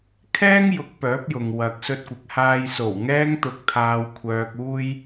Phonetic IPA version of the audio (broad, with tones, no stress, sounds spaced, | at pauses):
kʰ ɛː˥ ŋ j ʊ˨˥ k̚ p œː˨˥ p̚ j ʊ˨ ŋ w ɐ˨ k̚ s ɵ˧ t̚ kʷ ɪ˨ k̚ h aː˨ j s o˨˩ w ŋ ɛː˧ ŋ t̪ ʊ˧ k̚ t̪ʰ aː˧ w kʷʰ œː˧ k̚ uː˥ j